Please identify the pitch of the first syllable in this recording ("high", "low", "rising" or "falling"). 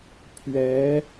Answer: rising